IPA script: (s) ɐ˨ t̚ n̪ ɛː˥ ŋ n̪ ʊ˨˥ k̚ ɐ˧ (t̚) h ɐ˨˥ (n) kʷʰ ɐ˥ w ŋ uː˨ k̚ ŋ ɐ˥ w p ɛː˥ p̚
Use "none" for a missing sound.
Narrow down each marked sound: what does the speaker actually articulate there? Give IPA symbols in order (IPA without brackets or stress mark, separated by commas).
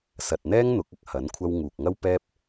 s, k̚, n